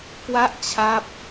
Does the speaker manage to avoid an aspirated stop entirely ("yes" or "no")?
no